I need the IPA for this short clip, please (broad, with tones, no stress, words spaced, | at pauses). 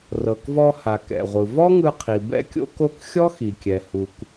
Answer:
rɤ˩kvɔ˧ ha˩ kɛ̰˩ʁʷɯ˩ vɔ˥ŋɯ˧qʰi˩ bɛ̰˥kʲo̰˥ko˥k xʲɔ˥xi˩kʲɛ˩ hu˩k